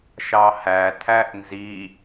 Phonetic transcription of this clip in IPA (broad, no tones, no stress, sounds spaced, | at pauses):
ʃ ɑ h æ tʰ æ ʔ n z i